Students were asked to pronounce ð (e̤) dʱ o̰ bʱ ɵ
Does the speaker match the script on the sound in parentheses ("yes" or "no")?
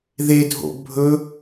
no